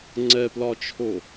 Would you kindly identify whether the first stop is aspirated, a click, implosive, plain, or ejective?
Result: click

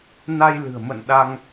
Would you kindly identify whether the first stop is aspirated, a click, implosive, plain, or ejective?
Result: implosive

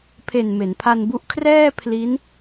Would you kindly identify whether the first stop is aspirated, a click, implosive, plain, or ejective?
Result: aspirated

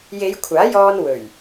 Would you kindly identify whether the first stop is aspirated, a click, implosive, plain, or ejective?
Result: aspirated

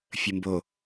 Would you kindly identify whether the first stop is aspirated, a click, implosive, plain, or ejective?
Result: plain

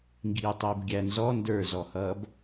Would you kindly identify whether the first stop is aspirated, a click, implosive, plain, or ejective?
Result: plain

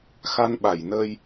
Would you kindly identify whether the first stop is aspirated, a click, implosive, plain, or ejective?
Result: implosive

